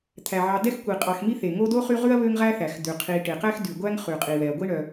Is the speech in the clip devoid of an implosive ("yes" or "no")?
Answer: yes